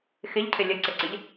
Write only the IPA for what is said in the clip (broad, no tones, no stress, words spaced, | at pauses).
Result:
xɪʎcʰɪ lʲəǀɪǀɪʎ